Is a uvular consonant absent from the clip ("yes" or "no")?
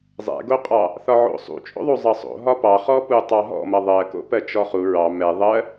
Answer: no